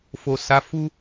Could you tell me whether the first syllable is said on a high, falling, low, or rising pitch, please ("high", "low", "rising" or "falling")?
low